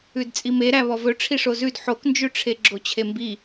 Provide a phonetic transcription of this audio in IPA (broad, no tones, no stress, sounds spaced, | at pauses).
ʉ d t͡sʼ i m e ɾ æ β ɔ v ɵ ʈ͡ʂʰ i ʂ o z ʉ d ħ o k n d͡ʒ ʉ ʈ͡ʂʰ e ɡ͡ǁ o t͡ɕʰ e m b i